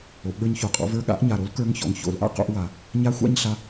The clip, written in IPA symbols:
o˩˧ ʔ ɠ ə˞˧ ɲ ç o˨˩ qʼ ɔ̰˧ v ə˞˧˥ ɠ a̰˧˥ ʔ ɲ a˨˩ ɾ o˧˥ l k ə˞˧˥ ŋ ç ɔ̰˨˩ ŋ ç o̰˧˩˧ l ʔ a̰˥˧ q o̰˥˧ ʔ w a˧˩˧ | ɲ a˧˥ xʷ a̰˥˧ ɲ ɬ a˧

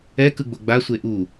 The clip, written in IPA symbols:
ɛ k ɯ ɡ͡b o ɡ͡b a sʷ e ʔ u

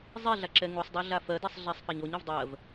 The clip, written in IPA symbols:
zˤ i ɮ a ǁ ɛ ŋ u sˤ dˤ ɜ ɮ a f ɜ d i sˤ ɮ e sˤ f a ɲ o ɲ o v dˤ ɜ v

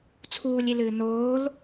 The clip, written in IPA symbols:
t͡sʰ uː lʲ i l ɨː n oː l

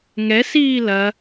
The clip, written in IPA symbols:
ŋ ɛ s iː l ɐ

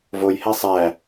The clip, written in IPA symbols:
v o j h æ sˤ æ

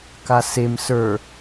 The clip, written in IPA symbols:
k a s e m s ə˞

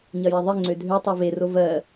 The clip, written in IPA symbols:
ɲ ɐ j ɛ ðˤ i ŋ͡ǀ ø dʱ ø tˤ o v e r o v ɜ

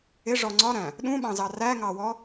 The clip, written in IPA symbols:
ɪ ʐ ɔ ŋ͡ǀ ɒ ɾ æ̃ | ɗ ũ ɓ ɑ̃ z ɑ r æ ŋ ɑ w ɔ

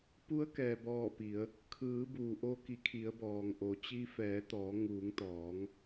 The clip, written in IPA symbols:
p u˧˥ ə̯ k ɛː˩ b ɔː˧˩ p i˩˧ ə̯ | kʰ ɯː˩˧ b uː˩ ʔ o˧ k i˩˧ kʰ i˩˧ ə̯ b ɔː˩ ŋ ʔ o˩˧ t͡ɕ i˧ f ɛː˩˧ t̪ ɔː˩˧ ŋ uː˩˧ ŋ t̪ ɔː˩˧ ŋ

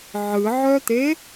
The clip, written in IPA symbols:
ʕ ɯ ʕ œ t̪ e

